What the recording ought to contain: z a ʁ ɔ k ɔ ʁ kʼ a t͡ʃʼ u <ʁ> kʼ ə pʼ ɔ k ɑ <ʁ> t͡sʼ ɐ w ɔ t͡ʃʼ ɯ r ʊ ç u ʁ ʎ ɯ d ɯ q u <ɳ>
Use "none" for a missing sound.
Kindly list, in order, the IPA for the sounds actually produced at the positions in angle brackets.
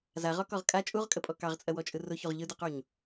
ʁ, ʁ, ɲ

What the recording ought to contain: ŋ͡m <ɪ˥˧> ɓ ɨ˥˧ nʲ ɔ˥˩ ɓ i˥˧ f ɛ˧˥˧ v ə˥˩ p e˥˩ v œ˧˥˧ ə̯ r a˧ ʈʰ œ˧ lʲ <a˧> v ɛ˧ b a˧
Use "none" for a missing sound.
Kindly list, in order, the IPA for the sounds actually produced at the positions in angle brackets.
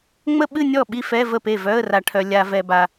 ə˥˧, a˧

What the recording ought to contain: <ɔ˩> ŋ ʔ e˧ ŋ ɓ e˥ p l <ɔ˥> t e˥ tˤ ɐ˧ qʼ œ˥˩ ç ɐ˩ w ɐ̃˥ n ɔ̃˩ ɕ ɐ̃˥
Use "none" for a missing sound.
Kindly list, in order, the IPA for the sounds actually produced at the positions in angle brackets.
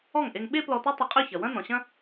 ɔ˥˩, ɔ˧

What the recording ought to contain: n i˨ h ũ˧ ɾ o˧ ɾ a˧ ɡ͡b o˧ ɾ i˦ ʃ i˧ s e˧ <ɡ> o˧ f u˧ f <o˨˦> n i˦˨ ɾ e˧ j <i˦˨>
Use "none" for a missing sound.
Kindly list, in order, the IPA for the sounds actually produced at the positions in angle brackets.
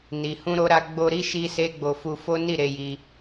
ɡ͡b, o˦, i˧

